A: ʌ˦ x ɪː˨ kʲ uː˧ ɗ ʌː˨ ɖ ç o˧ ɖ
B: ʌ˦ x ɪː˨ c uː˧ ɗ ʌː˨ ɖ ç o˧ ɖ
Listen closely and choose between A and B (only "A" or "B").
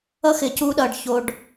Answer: B